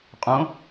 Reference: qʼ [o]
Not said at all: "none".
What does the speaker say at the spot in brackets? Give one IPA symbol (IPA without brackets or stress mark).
õ